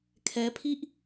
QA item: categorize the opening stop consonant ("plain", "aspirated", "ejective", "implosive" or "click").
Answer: aspirated